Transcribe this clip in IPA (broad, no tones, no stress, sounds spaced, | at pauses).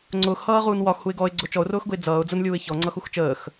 ŋ͡ǀ ʊː x h ʌː ʁ uː n w ɒ x h u ɪ̯ ɡ ɔ ɪ̯ ɡ͡ǀ ʊ t͡ʃ ɔ ʊ̯ r ʊː x ɡ ʊ ɪ̯ d͡z ʌː ʊ̯ d͡z ʊ n lʲ uː ɪ̯ ç ɔ ŋ͡ǀ ʌ x u x t͡ʃ əː x